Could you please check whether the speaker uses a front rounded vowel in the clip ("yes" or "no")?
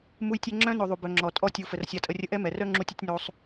yes